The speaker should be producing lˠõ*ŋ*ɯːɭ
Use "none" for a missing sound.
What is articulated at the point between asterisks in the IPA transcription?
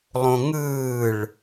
ŋ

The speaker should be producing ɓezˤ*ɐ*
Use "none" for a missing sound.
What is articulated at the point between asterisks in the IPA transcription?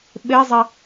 ɐ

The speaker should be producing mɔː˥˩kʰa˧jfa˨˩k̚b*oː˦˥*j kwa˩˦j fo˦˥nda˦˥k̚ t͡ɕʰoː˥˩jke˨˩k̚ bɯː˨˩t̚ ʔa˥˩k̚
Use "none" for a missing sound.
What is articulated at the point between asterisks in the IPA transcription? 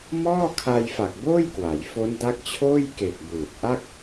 oː˥˩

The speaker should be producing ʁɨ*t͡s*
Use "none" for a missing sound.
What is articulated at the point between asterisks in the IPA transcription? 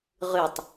tˤ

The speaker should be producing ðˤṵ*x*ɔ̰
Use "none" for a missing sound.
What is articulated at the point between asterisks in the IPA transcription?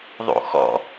x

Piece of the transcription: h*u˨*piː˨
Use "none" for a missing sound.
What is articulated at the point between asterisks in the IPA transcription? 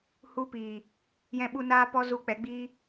u˧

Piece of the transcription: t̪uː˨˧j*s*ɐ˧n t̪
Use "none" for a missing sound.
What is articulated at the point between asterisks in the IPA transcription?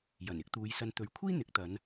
s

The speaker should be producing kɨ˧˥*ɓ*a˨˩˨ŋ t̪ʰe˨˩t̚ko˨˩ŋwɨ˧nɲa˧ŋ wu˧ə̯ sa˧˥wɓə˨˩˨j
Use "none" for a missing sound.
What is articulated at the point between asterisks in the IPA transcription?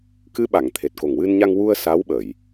ɓ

